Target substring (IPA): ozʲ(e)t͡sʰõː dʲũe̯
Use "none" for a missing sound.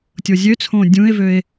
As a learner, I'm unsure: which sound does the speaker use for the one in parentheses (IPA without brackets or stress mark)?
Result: ø